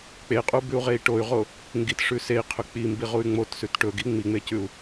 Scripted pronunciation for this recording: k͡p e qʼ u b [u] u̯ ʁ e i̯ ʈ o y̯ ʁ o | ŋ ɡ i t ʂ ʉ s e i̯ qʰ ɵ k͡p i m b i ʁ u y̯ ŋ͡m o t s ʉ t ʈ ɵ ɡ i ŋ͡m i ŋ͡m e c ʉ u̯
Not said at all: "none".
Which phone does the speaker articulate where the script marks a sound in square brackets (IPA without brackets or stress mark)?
ʉ